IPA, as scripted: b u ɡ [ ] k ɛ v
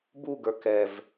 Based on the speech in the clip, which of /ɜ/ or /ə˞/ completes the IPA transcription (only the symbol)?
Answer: ə˞